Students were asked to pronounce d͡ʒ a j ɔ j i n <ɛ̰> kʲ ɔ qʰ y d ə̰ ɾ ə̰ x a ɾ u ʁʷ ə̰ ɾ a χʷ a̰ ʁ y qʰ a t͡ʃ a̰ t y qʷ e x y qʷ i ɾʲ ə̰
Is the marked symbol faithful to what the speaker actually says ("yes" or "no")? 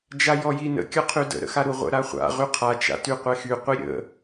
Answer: no